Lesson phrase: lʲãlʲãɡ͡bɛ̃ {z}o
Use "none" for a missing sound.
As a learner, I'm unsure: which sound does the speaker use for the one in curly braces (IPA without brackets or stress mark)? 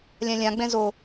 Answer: z